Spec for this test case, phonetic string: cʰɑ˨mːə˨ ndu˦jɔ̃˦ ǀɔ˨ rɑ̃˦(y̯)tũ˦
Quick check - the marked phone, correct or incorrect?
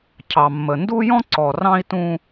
incorrect